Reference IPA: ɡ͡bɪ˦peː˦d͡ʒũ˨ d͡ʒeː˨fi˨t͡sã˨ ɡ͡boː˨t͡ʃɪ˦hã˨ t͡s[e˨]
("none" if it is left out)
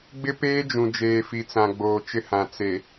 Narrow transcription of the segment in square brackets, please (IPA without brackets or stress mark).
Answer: e˨